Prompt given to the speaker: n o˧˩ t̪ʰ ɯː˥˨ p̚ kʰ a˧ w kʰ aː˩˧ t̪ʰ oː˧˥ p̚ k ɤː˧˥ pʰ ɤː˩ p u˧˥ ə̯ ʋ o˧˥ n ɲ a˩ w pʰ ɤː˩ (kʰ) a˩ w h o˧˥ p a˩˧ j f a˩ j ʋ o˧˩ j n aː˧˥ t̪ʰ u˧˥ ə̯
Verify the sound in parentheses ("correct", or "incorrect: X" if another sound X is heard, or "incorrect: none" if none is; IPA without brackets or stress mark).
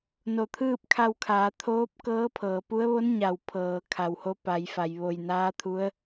correct